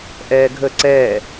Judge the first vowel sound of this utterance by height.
mid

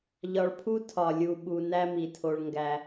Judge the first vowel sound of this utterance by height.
low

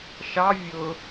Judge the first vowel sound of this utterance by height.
low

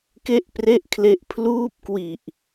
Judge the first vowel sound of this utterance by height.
mid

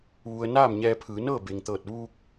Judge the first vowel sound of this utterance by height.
high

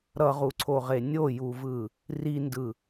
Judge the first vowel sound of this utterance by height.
mid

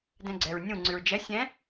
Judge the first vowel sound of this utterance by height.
mid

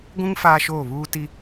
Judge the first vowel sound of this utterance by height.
high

